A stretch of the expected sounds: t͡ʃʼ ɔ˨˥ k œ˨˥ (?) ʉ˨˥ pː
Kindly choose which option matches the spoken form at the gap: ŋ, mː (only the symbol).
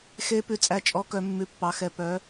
mː